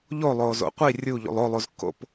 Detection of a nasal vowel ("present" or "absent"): absent